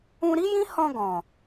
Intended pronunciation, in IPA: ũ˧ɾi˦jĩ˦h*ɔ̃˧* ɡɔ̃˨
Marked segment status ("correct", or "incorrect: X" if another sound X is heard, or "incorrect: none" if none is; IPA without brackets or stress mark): correct